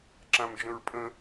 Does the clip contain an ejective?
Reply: yes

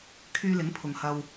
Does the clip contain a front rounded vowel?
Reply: yes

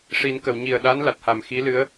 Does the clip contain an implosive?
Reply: yes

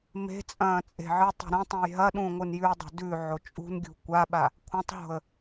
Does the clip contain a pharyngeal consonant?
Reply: yes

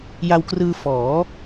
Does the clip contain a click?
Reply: no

